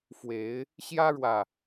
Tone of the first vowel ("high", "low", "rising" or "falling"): rising